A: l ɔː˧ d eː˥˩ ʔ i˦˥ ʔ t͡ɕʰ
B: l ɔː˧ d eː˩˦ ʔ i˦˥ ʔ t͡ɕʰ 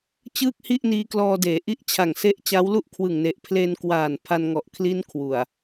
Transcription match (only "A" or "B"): B